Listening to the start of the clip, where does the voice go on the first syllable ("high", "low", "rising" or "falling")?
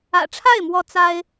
low